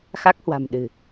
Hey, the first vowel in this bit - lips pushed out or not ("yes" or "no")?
no